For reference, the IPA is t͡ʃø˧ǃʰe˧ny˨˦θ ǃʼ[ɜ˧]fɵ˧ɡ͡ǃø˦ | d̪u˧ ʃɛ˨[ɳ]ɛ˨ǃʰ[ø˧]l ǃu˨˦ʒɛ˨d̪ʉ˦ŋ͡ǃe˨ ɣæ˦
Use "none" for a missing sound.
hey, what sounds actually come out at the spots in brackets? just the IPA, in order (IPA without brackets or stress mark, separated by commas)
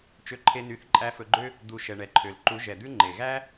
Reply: æ˧, ɳ, ø˨